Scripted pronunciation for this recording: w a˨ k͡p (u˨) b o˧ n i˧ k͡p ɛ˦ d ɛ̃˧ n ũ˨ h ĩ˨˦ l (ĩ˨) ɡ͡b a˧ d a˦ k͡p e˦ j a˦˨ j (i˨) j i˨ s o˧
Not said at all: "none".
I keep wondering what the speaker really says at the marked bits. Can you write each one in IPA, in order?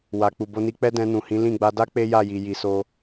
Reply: u˨, ĩ˦˨, i˨

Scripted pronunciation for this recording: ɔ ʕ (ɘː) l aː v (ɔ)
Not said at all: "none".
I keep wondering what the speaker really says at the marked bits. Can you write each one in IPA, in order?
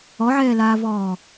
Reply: ɛː, ɔː

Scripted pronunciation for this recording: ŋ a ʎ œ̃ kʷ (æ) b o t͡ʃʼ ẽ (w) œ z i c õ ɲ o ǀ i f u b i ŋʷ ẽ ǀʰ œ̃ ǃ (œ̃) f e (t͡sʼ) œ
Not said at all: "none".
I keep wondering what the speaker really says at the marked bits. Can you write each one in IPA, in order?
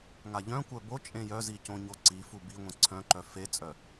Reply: œ, j, œ, t͡sʼ

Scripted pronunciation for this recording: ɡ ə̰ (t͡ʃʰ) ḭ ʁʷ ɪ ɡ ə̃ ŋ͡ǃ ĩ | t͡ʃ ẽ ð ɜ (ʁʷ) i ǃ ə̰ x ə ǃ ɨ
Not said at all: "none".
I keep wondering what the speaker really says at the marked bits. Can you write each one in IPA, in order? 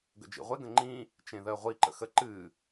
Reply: d͡ʒ, ʁʷ

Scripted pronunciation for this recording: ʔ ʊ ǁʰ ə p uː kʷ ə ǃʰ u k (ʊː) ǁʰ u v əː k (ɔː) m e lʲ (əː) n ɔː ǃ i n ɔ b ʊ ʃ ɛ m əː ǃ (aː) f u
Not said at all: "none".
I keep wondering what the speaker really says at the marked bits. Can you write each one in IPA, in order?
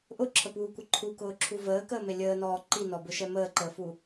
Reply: ʊː, əː, əː, əː

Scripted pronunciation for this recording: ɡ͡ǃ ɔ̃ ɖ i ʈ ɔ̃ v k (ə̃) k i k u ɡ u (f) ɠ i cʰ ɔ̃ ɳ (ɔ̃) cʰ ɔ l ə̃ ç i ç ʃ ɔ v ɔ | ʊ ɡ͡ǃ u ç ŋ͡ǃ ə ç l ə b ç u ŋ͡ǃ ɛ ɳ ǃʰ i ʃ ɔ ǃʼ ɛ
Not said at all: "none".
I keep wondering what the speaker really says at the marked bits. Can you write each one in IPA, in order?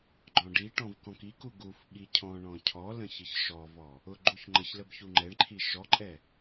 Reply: ɔ̃, f, ɔ̃

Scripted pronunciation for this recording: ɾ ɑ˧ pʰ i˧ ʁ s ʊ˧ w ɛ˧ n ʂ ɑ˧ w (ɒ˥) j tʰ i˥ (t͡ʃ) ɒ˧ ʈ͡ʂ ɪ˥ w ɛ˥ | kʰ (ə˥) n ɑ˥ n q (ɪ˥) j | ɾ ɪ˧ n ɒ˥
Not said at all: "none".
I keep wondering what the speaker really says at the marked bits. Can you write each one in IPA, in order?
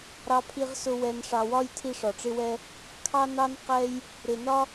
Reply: ɒ˥, ʂ, ɑ˥, ɛ˥

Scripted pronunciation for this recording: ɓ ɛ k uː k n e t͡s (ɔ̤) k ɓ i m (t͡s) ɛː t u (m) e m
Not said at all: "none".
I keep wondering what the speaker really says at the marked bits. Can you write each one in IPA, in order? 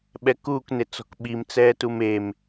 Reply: ɔ̤, t͡s, m

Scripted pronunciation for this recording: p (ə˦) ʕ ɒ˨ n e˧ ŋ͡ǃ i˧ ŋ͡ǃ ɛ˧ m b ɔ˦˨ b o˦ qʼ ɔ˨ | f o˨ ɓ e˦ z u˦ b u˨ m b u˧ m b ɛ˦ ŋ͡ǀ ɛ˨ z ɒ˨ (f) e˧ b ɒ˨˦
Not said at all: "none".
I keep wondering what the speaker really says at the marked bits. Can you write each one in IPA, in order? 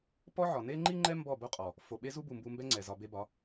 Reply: ɔ˦, b

